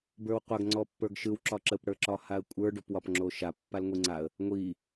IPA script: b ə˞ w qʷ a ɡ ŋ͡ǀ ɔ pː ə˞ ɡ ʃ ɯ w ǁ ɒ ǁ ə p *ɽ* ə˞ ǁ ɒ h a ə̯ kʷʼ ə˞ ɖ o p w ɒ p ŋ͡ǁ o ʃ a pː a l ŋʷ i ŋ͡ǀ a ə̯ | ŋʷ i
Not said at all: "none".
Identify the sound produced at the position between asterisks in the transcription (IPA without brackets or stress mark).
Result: ɽ